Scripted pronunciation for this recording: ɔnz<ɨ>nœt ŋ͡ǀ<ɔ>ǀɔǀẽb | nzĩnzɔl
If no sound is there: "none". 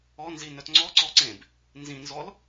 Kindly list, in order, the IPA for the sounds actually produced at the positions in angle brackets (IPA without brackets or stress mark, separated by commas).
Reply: i, ɔ